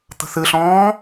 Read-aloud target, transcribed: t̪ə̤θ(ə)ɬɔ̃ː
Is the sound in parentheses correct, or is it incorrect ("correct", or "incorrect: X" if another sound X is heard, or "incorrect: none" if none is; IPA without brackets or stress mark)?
incorrect: ɨ